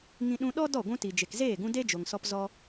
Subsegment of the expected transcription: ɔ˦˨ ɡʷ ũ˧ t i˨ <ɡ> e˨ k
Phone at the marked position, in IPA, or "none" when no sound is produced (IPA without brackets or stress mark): d͡ʒ